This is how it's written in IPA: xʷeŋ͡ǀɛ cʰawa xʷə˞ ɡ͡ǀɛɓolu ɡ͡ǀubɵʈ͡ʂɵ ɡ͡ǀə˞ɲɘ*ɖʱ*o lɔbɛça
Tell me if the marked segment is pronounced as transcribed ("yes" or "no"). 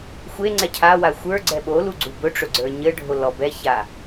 yes